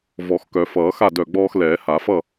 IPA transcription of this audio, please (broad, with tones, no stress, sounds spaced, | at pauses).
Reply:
v ɔ˨˩˦ x k œ˨˩˦ f ʌː˨˩˦ x a˥˨ d œ˧˩ ɡ͡b ɔː˦ x l ɛː˨˩˦ h a˨˩˦ f ʌ˥˨